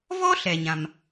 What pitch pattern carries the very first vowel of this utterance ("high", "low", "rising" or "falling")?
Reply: high